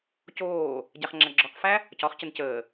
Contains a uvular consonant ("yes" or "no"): yes